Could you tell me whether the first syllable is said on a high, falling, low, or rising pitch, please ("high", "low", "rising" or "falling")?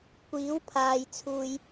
rising